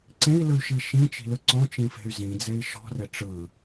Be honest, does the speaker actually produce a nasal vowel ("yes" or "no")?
yes